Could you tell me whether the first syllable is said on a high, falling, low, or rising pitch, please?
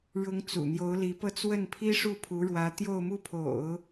rising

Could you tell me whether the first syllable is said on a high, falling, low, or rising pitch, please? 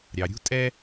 low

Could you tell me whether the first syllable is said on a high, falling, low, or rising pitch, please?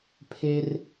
high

